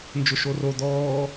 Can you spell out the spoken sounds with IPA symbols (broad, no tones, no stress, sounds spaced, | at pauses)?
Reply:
n d͡ʒ ʊ ʃ o r o d̪ ɔː